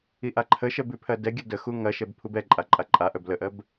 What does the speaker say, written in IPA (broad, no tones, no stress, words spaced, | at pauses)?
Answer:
iʔaǃʰəʃɜb ʉpʰɜdɛɡʲə dəxu ŋɐʃɛb pʰubɛǃʼa ǃʼaǃʼaʔœb ləʔɜb